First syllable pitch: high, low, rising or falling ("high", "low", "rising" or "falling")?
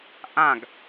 falling